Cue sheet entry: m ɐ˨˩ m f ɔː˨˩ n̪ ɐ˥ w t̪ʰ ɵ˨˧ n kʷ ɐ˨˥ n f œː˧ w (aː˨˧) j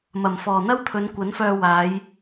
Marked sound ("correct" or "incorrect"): correct